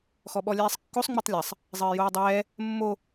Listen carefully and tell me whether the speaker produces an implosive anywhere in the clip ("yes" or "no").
yes